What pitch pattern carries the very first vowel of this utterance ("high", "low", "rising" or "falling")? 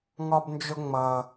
high